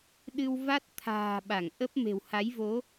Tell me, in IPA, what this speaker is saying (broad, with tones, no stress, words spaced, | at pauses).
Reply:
ɗɨ˧w va˦˥t̚ t̪ʰa̤ː˨˩ ɓa˧˩ŋʔə˦˥p̚ me̤˨˩wha˨˦jvo˨˦